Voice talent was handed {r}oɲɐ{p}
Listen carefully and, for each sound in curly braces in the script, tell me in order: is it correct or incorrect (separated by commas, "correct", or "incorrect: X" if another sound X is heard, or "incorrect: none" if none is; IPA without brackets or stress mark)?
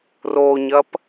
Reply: correct, correct